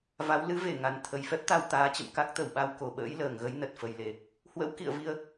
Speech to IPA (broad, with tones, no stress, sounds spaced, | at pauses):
v a˨˦ w l ɨ˨˦ v e˧˩ ŋ a˨˩ n t̪ʰ ə˨˩ j f ɛ˦˥ p̚ t̪ a˧ w t̪ aː˨˦ t͡ɕ ə̰˧˨ m k a˦˥ k̚ t̪ ə˧˩ w ɓ a˧ w k o˧˩ ɓ ə̰ː˧˥ j l əː˧˩ ŋ ɣ ə˨˦ j n ə˨˩ t̚ f ə˨˩ j l e˨˩ | h w ə̰˧˥ w k ḭ˧˨ ə̯ v i˧ ə̯